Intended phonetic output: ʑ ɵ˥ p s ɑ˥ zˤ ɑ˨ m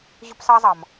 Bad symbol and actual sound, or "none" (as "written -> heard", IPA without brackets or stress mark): none